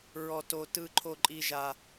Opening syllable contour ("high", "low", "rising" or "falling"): high